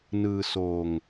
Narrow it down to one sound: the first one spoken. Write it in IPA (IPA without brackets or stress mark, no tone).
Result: n